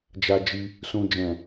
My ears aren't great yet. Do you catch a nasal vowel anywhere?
yes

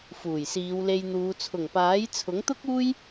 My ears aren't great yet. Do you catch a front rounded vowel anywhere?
no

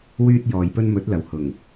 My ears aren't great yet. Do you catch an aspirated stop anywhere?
no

